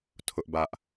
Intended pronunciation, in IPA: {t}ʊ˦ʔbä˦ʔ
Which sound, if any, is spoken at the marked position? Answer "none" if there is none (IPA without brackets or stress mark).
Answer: tʰ